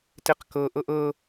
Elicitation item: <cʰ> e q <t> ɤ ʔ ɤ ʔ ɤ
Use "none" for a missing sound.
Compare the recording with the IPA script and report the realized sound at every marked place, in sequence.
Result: t, k

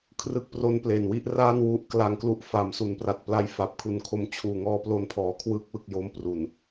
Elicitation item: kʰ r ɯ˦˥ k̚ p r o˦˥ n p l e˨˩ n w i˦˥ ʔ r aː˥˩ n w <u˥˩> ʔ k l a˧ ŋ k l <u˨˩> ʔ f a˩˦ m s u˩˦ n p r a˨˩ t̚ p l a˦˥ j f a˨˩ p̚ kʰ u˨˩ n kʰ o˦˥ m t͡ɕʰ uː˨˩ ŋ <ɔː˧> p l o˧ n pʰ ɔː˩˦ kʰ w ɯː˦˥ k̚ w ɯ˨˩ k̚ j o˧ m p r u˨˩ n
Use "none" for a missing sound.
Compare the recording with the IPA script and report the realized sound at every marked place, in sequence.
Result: u˦˥, u˦˥, ɔː˧

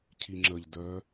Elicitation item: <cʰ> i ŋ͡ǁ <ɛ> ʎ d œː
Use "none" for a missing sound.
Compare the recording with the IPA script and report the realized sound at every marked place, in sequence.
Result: cʰ, ə

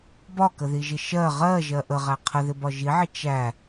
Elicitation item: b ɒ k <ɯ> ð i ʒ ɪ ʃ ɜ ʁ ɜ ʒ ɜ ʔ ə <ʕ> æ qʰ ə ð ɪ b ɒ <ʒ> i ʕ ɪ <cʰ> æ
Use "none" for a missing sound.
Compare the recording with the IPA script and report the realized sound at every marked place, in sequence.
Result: ə, ʁ, ʒ, t͡ʃ

